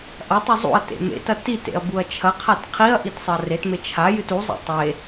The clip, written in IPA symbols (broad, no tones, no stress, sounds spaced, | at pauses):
ʔ ɐ tˤ u zˤ ṵ ɐ̯ t ḛ m ḛ t ɐ t i t ḛ ɐ̯ b u ɐ̯ t͡ʃʰ ɐ qʰ a t qʰ i ɐ̯ ʔ i t sˤ ɨ ɐ̯ r e t m e t͡ʃʰ a j ɨ t u zˤ ḛ tˤ e